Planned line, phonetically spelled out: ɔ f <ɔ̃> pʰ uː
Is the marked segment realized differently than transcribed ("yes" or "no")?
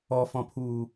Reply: no